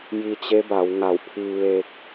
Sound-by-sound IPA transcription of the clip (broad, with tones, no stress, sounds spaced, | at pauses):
j i˧ t͡ɕ e˧˥ b a˩˧ w ŋ a˧˩ w pʰ i˧ ʋ e˧ k̚